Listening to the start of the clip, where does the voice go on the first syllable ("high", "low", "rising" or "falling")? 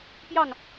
falling